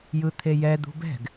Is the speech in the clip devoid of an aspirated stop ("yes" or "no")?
no